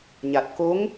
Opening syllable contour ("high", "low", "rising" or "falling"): low